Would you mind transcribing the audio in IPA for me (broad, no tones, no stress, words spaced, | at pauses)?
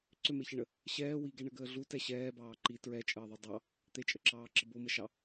ǀʏmeçəɳə | ɕɛː wiɡɛɳəɡəː ɮutɛ ɕɛːbɑː ǃi tɹɛt͡ʃʼəːðˤu dˤɑ | t̪et͡ʃʼəǁɑːǁə boməʃɑ